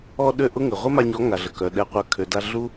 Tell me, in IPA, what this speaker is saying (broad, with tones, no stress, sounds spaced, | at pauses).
ɔ˧ ɗ ø˧ ʔ ʊ˦ ŋ ə˨ ʁʷ ə˦ m a˧ ɲ ɔ˨˦ ŋ a˨ ɮ ə˨ k œ˨ ɗ ɛ˨ qʷ œ˨ kʰ ø˨ d a˧ ɮ u˦